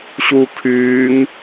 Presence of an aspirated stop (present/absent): present